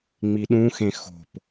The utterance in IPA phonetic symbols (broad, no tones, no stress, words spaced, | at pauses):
ŋ͡miɗũxẽ xo̤p